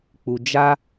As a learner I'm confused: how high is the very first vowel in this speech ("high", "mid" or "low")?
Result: high